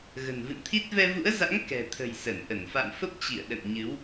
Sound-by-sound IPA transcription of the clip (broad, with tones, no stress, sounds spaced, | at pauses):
ɣ ə̤˨˩ n v ɨ̰˧˨ n t̪ʰ i˦˥ t̚ v ɛ˧ v ṵ˧˥ ə̯ z a̰˧˥ ŋ k ɛ̤˨˩ t̪ʰ ə̤˨˩ j s ə˧˩ n ʔ ə˧˩ n f a̰˧˨ m f ə˦˥ p̚ t͡ɕ ḭ˧˨ ə̯ ɗ ə̰˧˨ n ɲ ɨ˨˦ w